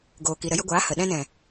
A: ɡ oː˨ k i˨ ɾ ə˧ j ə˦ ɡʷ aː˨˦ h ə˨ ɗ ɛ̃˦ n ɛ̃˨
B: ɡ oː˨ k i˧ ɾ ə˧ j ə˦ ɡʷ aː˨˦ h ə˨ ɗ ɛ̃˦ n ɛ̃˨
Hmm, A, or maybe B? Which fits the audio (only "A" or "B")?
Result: A